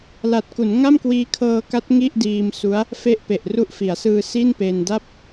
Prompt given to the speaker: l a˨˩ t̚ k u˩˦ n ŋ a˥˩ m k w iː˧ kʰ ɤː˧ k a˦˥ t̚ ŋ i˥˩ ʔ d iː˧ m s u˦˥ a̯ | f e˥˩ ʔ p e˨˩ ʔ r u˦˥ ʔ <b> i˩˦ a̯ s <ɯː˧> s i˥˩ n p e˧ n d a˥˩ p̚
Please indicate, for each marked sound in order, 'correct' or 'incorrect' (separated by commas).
incorrect, correct